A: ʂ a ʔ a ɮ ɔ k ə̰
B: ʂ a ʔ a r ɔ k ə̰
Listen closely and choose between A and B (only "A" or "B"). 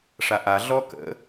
A